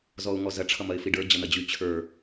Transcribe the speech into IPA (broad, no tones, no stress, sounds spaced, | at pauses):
z ɔ ʊ̯ ŋ ɔ z ɐ ʈ͡ʂʰ ʌ m ɐ ɪ̯ f i ɖ ə˞ d͡ʑ ʌ n̪ ɐ d͡ʑ y t͡ɕʰ ə˞